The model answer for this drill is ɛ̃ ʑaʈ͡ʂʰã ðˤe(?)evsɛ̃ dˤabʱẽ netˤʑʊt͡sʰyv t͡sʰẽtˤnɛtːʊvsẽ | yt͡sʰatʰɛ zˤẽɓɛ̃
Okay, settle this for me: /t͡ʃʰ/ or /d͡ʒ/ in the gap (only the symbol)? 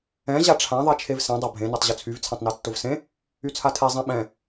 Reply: t͡ʃʰ